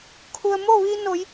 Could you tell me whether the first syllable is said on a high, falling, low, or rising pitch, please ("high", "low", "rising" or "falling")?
low